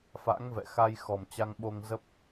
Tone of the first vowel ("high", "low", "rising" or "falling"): rising